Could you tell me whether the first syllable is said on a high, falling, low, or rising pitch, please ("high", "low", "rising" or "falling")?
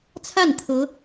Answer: falling